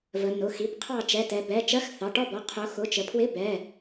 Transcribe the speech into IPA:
v ə˩˧ n ʊ˩˧˩ x i˩˧˩ b qʰ ɑ˥˨ t͡ʃ ɛ˩˧˩ t ɛ˩˧ b ɛ˩˧˩ t͡ʃ ɜ˧˥˧ x θ ɑ˩˧˩ ʈ ɔ˥˨ b ɔ˩˧˩ qʰ ʊ˩˧ x ʊ˩˧˩ t͡ʃ ə˩˧ pʰ w ɪ˧˥˧ b ɛ˩˧˩

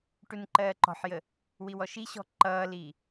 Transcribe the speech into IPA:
ʈ u n ǃ ɜː ǃ ɔ̤ ħ j ə | w i w ɔ ʃ i ɕ ɔ̤ ǃ ʌː l iː

